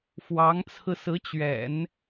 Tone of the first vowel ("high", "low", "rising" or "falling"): rising